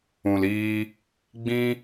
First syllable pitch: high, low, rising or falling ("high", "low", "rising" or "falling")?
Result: low